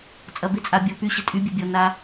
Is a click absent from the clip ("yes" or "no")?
yes